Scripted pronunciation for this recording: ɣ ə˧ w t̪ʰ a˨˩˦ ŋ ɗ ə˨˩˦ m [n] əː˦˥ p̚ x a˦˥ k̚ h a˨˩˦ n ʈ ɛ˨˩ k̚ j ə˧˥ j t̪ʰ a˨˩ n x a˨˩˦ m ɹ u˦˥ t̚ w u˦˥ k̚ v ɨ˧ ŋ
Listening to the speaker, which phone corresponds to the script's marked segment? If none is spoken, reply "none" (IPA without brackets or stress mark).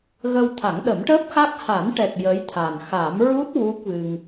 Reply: ʈ